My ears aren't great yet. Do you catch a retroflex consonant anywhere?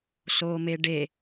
yes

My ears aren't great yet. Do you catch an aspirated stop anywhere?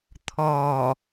yes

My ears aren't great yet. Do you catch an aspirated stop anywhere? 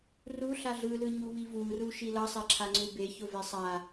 yes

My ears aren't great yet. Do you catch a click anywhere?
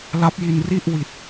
no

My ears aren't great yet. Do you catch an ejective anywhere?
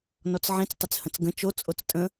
yes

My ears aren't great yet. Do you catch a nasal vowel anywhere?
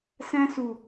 yes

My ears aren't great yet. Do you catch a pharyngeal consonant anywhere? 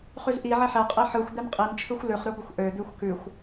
yes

